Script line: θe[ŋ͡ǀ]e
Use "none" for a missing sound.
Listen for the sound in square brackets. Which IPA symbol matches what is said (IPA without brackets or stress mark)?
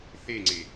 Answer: ŋ͡ǀ